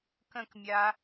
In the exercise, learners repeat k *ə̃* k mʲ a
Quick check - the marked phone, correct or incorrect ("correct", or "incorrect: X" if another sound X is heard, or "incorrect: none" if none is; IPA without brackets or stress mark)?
correct